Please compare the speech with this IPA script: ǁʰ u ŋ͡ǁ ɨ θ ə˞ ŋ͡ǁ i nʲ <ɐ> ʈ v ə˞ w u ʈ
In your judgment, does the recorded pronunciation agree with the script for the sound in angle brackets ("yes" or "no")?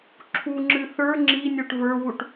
no